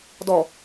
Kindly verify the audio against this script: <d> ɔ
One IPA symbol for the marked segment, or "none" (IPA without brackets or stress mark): d